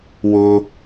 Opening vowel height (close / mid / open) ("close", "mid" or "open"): close